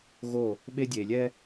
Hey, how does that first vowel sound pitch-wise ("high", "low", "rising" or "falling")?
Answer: falling